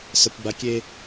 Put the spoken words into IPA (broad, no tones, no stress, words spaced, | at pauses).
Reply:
sɐkʷɡ͡ba kʲe